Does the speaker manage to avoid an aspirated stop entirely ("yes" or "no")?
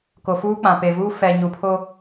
no